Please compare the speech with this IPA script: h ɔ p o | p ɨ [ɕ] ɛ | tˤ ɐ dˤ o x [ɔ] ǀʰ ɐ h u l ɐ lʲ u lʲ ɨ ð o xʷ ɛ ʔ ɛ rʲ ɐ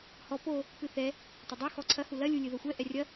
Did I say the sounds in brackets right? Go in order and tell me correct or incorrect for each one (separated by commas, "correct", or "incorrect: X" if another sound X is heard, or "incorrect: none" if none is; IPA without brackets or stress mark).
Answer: incorrect: θ, correct